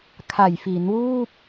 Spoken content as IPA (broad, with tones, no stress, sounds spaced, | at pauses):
kʰ a˨˩ j f i˩˦ n w uː˥˩ p̚